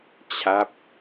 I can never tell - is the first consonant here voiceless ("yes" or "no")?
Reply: yes